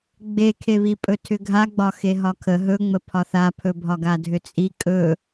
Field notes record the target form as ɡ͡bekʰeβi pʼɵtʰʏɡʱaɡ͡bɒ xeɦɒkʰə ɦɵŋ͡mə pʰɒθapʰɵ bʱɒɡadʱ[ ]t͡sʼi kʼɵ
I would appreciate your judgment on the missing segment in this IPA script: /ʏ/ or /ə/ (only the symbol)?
ʏ